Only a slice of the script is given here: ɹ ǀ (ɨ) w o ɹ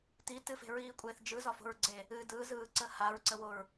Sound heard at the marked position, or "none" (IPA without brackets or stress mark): ə